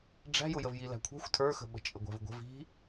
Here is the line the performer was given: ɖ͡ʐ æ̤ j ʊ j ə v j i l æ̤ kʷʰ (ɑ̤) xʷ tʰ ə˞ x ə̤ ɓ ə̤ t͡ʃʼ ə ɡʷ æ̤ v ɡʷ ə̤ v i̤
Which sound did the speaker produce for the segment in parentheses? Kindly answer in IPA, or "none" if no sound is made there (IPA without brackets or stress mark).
ɑ̤